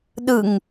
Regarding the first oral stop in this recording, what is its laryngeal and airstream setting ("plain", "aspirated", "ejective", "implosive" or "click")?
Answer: implosive